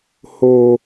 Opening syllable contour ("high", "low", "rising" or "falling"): high